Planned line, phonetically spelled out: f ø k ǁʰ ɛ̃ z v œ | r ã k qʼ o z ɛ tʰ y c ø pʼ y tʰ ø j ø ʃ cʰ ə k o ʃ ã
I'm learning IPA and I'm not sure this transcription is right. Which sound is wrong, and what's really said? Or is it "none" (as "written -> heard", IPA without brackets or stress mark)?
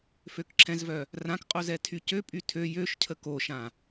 none